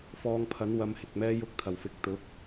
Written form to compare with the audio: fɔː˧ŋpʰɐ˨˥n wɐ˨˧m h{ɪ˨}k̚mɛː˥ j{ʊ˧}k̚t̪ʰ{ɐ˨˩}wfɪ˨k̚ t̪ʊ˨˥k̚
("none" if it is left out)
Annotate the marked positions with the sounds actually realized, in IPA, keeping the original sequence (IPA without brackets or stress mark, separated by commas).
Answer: ɪ˨, ʊ˧, ɐ˨˩